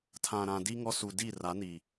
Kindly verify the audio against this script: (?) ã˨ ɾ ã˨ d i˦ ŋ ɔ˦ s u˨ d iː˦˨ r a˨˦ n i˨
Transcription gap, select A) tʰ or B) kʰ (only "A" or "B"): A